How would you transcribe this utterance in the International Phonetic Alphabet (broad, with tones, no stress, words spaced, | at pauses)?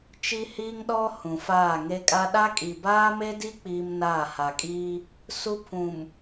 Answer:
t͡ʃi˦hiː˦ŋɗɔ˦ hũ˨faː˦˨ŋe˦kʼa˦ ɗa˦kʼi˨ baː˦me˦di˦ k͡piː˦mnaː˦˨ ha˨kʼiː˦ | su˦pʰũ˨m